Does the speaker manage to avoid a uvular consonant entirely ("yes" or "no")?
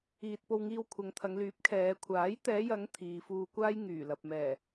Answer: yes